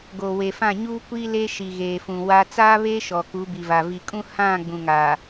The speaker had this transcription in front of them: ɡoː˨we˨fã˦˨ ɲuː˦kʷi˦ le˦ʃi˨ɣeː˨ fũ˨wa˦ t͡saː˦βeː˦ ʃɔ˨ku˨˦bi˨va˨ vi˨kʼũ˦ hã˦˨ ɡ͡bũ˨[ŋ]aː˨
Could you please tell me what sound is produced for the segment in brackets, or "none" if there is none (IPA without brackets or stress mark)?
ŋ